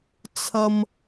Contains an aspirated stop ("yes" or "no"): yes